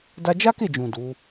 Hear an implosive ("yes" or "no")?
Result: no